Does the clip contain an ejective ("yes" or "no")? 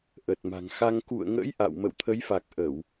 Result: no